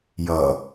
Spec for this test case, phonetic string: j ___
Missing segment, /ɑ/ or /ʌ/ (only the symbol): ʌ